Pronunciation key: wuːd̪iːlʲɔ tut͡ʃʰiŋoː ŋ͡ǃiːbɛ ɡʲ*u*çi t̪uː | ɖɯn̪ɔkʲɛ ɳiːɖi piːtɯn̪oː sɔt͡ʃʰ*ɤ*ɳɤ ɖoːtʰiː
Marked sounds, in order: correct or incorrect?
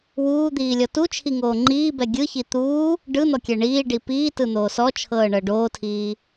incorrect, incorrect

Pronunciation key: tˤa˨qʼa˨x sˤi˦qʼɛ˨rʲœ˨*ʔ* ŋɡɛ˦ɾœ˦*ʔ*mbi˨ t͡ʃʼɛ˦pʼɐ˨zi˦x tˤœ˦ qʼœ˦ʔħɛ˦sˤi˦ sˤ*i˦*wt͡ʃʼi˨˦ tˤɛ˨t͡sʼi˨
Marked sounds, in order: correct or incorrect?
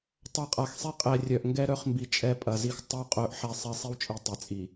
correct, incorrect, correct

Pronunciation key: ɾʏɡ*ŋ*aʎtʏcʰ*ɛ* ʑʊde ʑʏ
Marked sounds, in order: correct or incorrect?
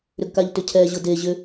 incorrect, correct

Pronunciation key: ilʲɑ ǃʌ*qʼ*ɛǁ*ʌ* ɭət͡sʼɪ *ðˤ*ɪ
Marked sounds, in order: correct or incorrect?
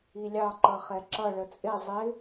incorrect, correct, incorrect

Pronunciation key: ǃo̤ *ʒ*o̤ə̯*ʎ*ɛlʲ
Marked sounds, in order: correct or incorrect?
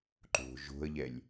correct, correct

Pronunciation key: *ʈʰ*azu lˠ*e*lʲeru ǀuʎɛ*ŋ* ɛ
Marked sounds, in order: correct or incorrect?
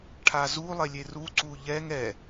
correct, correct, correct

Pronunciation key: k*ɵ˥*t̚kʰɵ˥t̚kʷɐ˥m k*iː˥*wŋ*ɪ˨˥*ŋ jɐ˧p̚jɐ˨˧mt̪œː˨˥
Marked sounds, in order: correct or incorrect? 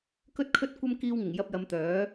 correct, incorrect, incorrect

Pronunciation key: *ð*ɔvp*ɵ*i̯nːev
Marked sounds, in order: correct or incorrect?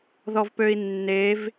correct, incorrect

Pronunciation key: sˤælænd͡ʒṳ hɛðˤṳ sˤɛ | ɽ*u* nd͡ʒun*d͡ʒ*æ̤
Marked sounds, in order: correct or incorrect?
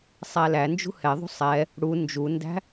correct, incorrect

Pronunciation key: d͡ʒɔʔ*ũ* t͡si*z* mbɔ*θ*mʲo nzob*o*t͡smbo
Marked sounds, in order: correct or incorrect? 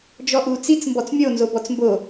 incorrect, incorrect, incorrect, incorrect

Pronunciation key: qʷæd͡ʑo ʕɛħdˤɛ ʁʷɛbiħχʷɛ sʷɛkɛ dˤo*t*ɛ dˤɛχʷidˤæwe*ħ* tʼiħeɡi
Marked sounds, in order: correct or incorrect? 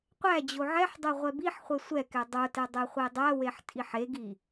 correct, correct

